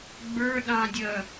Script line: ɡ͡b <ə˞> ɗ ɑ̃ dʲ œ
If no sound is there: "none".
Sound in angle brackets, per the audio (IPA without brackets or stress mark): ə˞